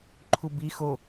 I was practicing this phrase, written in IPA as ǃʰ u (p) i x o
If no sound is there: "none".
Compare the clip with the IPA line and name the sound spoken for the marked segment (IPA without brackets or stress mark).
b